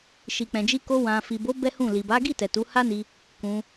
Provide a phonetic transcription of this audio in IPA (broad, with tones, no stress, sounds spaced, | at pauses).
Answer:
ʃ i˨ k͡p ɛ̃˨ d͡ʒ i˧ k o˧ w ã˨ f i˨ b o˨˦ b ɛ˦ h ũ˦˨ l i˨ b a˨˦ ɡ i˦˨ t ɛ˨ t u˨˦ h a˦ n i˧ | k ũ˧